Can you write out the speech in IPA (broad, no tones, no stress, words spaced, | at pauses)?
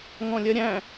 ŋɔ̃lʲɜɾʲæ̃